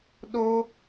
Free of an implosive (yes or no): no